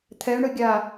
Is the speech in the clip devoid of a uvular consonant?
yes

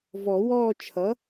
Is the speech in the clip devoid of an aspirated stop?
no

